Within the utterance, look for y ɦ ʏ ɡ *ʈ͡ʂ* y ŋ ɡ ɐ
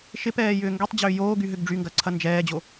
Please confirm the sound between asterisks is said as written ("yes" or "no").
no